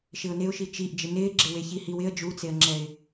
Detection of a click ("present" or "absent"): present